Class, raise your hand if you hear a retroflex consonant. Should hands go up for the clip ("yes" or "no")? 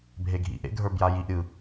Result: no